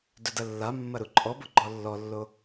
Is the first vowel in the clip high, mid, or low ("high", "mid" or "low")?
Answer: mid